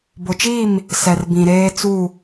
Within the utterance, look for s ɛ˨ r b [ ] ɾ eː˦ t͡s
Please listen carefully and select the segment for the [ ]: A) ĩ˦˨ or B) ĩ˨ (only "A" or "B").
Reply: B